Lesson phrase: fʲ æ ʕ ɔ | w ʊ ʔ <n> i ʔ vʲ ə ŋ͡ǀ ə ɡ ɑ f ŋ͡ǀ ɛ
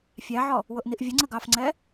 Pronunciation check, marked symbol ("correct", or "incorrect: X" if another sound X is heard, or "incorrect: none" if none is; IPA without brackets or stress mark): correct